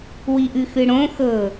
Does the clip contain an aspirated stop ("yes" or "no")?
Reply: no